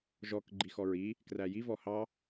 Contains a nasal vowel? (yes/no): no